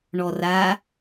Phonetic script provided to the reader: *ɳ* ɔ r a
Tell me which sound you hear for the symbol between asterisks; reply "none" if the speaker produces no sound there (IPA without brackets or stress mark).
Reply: ɳ